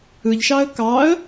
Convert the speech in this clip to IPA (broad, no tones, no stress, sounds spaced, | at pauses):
ɯ ʎ ʃ ɑ ə̯ k ɑ ə̯